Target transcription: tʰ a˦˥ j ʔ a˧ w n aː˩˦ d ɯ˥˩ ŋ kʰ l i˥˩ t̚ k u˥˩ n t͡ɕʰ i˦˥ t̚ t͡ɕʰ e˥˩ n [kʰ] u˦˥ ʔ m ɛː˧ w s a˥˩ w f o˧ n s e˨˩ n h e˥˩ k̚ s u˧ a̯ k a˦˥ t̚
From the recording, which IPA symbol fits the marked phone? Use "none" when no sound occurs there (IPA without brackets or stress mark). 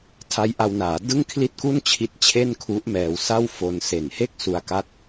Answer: kʰ